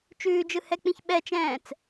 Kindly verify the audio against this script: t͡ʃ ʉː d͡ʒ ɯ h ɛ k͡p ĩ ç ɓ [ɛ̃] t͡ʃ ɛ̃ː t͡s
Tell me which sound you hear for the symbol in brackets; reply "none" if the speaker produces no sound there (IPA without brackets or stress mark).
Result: ɛ